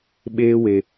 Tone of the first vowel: high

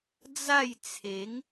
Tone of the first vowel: falling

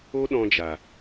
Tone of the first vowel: high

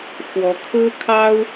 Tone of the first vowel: rising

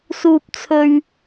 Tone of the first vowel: high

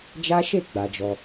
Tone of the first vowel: high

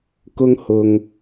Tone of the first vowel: high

